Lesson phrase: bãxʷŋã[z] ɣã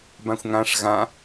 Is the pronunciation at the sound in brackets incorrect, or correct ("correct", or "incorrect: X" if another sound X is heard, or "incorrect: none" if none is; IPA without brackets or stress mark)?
incorrect: ʂ